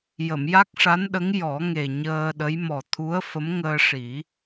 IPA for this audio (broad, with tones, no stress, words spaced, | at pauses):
jə˨˩˨mja˦˥k̚ʂa˧˥nɗə˧˥ŋ jɔ˨˩˦ŋe˨˩ɲəː˧ɗə˧˥j mɔ˨˩ t̪ʰu˧˥ə̯ fə˧˥mŋəː˧ʂi˨˩˦